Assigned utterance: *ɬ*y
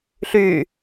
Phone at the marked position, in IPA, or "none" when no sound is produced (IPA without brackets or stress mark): ɬ